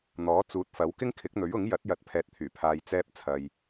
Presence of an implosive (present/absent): absent